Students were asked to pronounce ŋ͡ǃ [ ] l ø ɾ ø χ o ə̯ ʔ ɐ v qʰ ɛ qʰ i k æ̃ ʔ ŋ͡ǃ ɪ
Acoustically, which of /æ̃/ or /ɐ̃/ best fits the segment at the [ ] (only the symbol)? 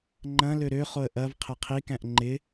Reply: ɐ̃